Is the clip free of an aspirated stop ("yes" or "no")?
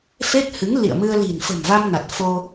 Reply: yes